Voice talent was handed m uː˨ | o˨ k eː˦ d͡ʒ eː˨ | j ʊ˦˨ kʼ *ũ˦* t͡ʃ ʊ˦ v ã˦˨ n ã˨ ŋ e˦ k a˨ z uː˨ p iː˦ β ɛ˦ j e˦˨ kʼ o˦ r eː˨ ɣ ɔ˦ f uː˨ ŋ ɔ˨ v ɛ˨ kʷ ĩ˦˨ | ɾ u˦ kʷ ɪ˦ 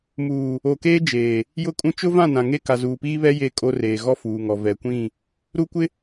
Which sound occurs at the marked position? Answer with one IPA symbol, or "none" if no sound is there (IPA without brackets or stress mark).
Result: ũ˦